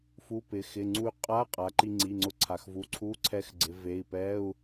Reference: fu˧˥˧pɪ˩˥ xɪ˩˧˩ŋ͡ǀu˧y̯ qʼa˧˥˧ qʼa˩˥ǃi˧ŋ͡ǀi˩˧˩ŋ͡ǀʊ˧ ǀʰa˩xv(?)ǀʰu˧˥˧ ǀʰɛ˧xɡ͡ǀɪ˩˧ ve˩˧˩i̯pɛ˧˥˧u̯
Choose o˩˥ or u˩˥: u˩˥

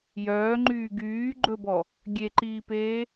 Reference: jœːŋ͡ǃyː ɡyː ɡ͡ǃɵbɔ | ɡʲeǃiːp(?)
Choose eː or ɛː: eː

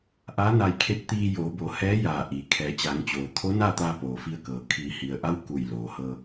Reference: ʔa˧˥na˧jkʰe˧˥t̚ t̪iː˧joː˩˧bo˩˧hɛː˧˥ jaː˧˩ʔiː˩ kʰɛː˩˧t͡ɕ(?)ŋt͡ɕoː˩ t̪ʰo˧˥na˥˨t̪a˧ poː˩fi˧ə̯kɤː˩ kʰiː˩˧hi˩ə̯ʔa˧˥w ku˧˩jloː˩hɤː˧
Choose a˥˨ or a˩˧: a˩˧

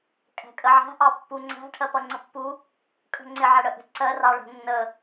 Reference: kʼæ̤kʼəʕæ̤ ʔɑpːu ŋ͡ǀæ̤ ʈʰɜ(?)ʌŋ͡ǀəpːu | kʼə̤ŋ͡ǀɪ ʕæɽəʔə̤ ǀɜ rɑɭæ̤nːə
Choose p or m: p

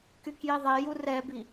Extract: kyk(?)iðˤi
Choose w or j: j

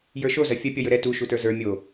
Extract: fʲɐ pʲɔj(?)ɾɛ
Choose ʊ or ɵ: ɵ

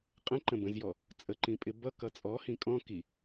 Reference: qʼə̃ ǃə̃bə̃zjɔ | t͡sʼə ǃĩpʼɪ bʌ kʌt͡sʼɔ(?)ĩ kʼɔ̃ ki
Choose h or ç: h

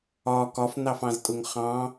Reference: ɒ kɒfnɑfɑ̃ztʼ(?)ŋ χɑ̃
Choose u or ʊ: ʊ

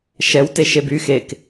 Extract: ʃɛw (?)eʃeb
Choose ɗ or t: t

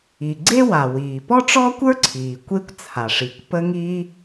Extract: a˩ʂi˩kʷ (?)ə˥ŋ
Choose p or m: p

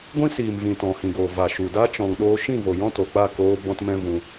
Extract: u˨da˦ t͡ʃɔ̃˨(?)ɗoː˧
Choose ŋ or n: ŋ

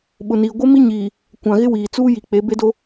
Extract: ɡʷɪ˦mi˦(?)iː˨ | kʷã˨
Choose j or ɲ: ɲ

